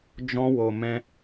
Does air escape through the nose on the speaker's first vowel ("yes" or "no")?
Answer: yes